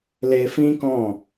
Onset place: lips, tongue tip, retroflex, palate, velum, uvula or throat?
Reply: tongue tip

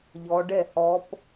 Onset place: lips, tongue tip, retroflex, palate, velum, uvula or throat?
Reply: palate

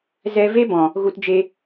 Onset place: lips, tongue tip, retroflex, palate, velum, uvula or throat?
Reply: tongue tip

